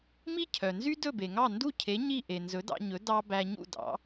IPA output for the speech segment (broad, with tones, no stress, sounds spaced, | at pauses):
m i˥ cʰ œ˩ n z y˥ d ɵ˥˩ b e˩ ŋ ɑ˥˩ n d u˥˩ cʰ e˩˥ ɲ i˥˩ ʔ e˩ n z ɵ˩˥ d ɑ̰˧ ɲ ɵ˩˥ d ɑ˧ b æ˧ ɲ ṵ˥˩ d ɑ̰˩˥